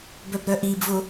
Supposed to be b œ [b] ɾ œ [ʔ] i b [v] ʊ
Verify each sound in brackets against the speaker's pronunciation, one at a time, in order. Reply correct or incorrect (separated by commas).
correct, correct, correct